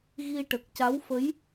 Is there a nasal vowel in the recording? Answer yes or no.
no